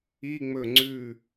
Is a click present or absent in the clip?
present